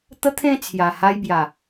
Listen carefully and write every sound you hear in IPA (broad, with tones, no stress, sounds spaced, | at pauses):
t̪ ə˦ t̪ʰ ẽ˥˧ t͡sʰ j a˨˩ h a˧ j b j a˨˩